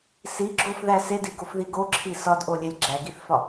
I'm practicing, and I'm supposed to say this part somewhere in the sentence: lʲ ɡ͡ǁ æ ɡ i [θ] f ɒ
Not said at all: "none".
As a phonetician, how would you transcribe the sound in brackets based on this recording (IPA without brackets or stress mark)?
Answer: θ